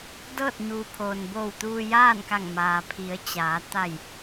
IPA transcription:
d ɤː˥˨ t̚ ɲ uː˩ pʰ oː˩ n b oː˧˩ w t̪ uː˧ j aː˥˨ n k a˧˩ ŋ m aː˩ pʰ i˩˧ ə̯ t͡ɕ aː˩˧ t̪ a˧˩ j

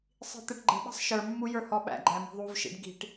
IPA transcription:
sˤ i̤ t̪ ɛ ʈ ɡ͡ǃ ə̤ ɓ ɛ̤ sˤ ʃ ə˞ mː u j ə˞ h ɔ ɓ æ̰ ɡ͡ǃ æ m i̤ ðˤ u v ʃ ḭ ɖ ɡ i̤ ʈ

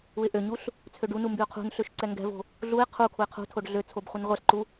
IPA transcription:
u ɪ̯ ʔ ø ɲ u ɬ | t͡sʰ ø ɖ u n u m b y ʊ̯ qʰ ṳ n ɬ ø ʃ ǀ ɛ ŋ ɡ ɛ̤ v o̤ | ɮ u ɪ̯ qʰ u kʰ u ɪ̯ qʰ ṳ tʰ o ɖ ɮ ø t͡sʰ o b χʷ ɨ n ʁʷ ɛ ɬ ǃ u

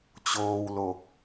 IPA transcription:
t͡ɕ oː˧ w l o˨˩ k̚

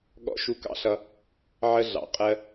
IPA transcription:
ɠ ɔ̰˦ ʃ u˦ k ɑ̰˦ ɬ ʌ˦ | ʕ ə˦ ɮ ɑ̰˨˦ qʼ ɜ˦

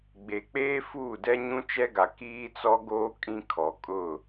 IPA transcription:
ɡ͡b e˨ k͡p eː˦ f uː˦˨ d ɛ˦ ɲ ũ˦ t͡ʃ ɛ˦ ɡ a˨ k iː˦ t͡s ɔ˦ ɡ oː˦ kʼ ĩ˦ kʰ ɔ˨ kʼ ʊ˦˨

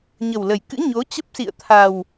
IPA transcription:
ɲ ə˨˩ w l ə˨˩ j k ɨ̰˧˥ ɲ o˨˦ t͡ɕ ə˦˥ p̚ s ḭ˧˨ ə̯ t̪ʰ a˨˩ w

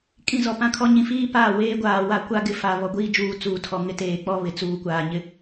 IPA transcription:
kʼ ĩ˦˨ z ɔ˨ p ã˦ kʰ ɔ˦ ɲ ĩ˨ f iː˦ p aː˦˨ w eː˦ ɡʷ aː˨ w a˦ kʷ a˦ ɡ ɪ˨ f a˨ β ɔ˨ ɡʷ iː˦ d͡ʒ uː˨ t͡s uː˨ tʰ ɔ˨ ŋ ɪ˦ t eː˨ k͡p ɔ˦ β ɪ˨ t͡s uː˨ kʷ aː˨ ɲ ɪ˦

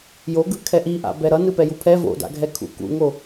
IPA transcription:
j o ɡ ɯ kʰ ɛ ʔ i ʔ a̰ b ɛ ɾ ʌ n ɯ p ɛ j u pʰ ɛ v o̰ d a̰ ɡʱ ɛ kʰ ṵ k ṵ ŋ o

